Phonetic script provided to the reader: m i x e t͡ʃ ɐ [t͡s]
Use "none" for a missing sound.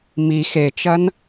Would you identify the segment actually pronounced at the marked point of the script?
n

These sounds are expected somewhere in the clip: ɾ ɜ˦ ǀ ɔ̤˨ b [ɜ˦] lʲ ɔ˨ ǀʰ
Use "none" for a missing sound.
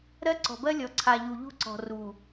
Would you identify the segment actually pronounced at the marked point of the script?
ɜ˦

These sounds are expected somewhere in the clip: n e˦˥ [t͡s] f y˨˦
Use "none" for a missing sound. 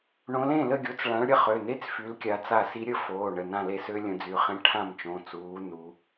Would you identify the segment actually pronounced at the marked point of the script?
t͡s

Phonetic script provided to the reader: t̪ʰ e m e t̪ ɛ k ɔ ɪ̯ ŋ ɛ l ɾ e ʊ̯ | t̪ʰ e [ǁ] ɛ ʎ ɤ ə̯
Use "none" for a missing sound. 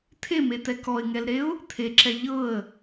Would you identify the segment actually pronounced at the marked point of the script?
ǁ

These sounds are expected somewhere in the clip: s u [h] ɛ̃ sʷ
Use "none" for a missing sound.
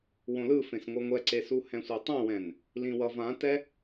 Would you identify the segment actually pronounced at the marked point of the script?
h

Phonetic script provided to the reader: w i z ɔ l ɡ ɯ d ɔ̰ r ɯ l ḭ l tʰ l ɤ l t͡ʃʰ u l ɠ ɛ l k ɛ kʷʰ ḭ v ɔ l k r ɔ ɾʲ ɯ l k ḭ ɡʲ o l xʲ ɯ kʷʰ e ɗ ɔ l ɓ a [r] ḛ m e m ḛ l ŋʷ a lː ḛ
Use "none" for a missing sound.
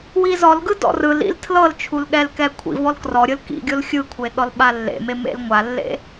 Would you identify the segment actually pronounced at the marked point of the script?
lː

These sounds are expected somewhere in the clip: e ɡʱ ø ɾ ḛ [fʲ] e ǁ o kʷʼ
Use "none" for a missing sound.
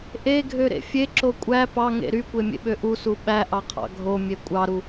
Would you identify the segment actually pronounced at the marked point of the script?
fʲ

